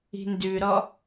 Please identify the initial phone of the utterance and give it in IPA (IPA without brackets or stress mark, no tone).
i̤